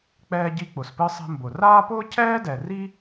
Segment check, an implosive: absent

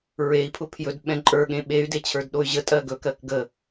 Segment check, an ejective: present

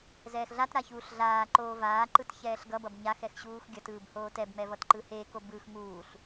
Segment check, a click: present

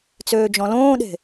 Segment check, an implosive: present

